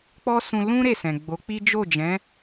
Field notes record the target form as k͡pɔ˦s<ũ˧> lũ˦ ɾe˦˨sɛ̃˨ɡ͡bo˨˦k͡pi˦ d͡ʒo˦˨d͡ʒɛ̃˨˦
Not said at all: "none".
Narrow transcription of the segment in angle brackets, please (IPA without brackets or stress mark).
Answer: ũ˧